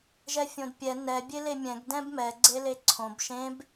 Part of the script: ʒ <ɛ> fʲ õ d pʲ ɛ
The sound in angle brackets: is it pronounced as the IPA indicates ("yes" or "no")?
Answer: yes